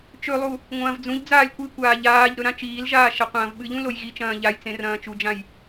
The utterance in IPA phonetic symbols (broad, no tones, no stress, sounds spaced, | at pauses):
t͡ʃ ɵ lˠ u | ŋʷ ɐ̃ː v d͡z ũ ʎ d͡z aː lʲ kʷ ɨ kʷ aː ʎ aː ʎ ɾ ɵ ɾ ã t͡ʃ iː l ʒ aː ʃ ɐ qʷ ɐ̃ː v ɓ ɨ ʎ ũ l o j ɣ i t͡ʃ ɐ̃ː ʎ a j t͡s ẽ r ɐ̃ː t͡ʃ u d͡ʒ ã j